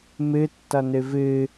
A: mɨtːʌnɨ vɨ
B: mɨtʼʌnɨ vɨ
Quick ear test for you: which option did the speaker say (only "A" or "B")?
A